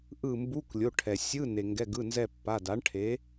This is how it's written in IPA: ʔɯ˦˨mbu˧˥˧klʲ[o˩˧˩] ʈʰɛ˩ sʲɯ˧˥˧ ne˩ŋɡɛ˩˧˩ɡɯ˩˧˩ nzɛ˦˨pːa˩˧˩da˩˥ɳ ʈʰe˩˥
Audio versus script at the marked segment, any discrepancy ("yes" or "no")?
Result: no